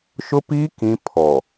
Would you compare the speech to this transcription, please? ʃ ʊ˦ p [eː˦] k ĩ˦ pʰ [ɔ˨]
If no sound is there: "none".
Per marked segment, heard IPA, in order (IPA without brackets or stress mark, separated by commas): iː˦, ɔ˨